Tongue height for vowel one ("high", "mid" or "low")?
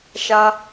low